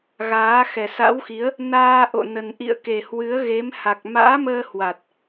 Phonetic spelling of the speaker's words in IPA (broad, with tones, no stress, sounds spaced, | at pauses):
ɣ aː˨˦ x ɛ˨˩ s a̰˧˥ w x i˨˦ ə̯ | n aː˧ ʔ o̰˧˨ n ə˨˩ n ʔ ḭ˧˨ ə̯ k e˨˩ h w ɨ˨˦ ə̯ ɣ e˨˦ m h a˨˩ k̚ m a̰ː˧˥ m əː˧ h w a˨˩ t̚